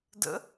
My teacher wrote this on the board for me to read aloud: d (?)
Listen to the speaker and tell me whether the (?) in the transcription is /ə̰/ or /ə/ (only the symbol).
ə̰